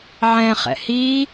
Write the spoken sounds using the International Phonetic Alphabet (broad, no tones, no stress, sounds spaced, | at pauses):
ʕ ɛ̃ χ ɛ̰ h i